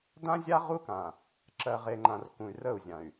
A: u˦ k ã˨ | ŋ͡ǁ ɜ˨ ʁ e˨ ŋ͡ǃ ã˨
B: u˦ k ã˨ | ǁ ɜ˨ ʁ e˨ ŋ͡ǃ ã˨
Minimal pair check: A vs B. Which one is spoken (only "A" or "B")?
B